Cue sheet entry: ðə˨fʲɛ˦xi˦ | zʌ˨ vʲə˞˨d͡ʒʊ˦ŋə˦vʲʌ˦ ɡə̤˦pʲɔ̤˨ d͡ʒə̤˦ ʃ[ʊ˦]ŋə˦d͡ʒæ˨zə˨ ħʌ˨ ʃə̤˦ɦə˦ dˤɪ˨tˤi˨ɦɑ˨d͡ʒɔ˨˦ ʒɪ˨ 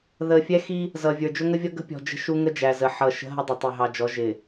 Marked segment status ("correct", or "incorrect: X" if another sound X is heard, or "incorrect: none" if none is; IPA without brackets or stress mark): incorrect: u˦